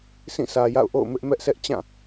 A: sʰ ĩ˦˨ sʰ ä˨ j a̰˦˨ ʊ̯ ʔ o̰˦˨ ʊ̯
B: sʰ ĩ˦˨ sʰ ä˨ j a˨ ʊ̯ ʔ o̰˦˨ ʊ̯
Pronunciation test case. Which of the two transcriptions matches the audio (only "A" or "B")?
A